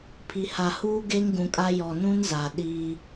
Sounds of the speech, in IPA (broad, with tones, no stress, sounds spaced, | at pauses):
pʰ i˨ h a˨ h uː˦ ɡ e˦ ŋ ɡ ũ˨ kʼ a˦ j ɔ˨ n ũ˦ n z a˨ ɗ iː˦